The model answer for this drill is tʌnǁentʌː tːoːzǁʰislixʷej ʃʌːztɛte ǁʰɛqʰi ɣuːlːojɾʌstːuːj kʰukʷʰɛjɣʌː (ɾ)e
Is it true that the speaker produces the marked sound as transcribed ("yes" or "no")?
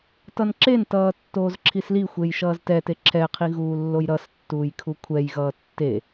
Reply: no